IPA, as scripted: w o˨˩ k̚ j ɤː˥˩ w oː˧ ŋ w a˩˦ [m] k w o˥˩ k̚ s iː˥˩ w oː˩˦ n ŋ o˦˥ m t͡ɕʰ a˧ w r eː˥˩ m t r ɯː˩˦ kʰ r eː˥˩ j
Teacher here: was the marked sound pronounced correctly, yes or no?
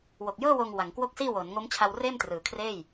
no